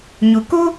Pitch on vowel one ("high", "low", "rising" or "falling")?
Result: low